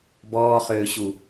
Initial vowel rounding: rounded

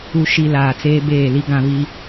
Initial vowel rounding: rounded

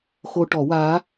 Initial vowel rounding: rounded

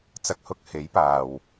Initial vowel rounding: unrounded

